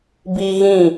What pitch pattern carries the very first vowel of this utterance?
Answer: high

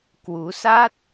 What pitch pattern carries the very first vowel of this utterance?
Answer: rising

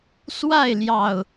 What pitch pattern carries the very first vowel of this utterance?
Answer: falling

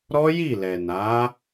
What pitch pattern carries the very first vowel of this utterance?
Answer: high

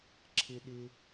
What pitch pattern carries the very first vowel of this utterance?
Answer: low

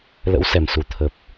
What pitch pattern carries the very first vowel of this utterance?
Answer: rising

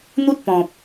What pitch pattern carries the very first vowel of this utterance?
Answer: high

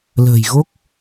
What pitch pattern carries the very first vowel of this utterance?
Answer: low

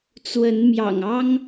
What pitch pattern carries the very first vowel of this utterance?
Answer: rising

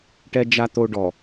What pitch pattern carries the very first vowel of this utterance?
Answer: high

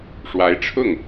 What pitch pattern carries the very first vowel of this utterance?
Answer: rising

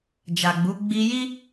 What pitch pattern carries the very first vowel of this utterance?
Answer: low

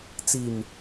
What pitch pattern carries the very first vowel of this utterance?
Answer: low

